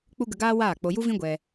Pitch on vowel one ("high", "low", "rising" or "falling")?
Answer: high